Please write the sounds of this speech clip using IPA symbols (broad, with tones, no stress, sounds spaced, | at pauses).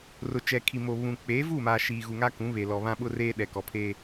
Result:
r ʊ˨ t͡ʃ ɛ˨ kʰ i˨ m o˨ β ũ˨ k͡p eː˨˦ v uː˦˨ m aː˨ ʃ iː˨ ɣ u˨ ŋ a˦ k ũ˨˦ β e˨ l ɔ˨ β ã˦ ɓ ʊ˦ r eː˦ ɗ ɛ˨ k ɔ˨ pʰ eː˦